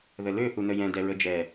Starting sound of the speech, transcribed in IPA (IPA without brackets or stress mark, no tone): ð